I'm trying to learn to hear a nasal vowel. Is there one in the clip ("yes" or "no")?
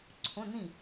yes